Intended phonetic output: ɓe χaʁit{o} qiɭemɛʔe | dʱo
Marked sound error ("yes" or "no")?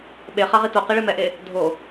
no